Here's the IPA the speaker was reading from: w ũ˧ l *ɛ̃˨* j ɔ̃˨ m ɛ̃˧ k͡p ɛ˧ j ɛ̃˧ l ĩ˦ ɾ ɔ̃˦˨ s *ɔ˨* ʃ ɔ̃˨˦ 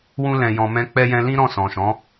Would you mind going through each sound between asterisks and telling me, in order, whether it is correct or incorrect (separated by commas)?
correct, incorrect